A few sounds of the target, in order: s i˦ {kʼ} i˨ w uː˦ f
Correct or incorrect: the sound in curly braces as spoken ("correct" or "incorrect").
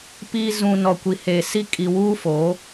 correct